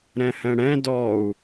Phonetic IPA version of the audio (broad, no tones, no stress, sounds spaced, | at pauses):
ɾ ɛ̃ h ɛ̃ ɽ ɛ̃ d ɔ u̯